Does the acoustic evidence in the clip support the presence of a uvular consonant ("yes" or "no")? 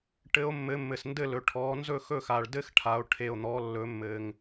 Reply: no